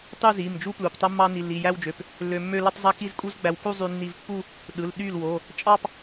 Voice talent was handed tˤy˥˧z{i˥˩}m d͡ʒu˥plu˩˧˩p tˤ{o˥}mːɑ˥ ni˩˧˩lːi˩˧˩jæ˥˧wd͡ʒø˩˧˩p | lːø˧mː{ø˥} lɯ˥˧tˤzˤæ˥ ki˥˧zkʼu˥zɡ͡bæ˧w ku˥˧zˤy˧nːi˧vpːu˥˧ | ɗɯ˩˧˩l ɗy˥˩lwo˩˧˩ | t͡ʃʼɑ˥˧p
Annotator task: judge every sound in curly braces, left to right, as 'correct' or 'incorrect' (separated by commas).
incorrect, correct, incorrect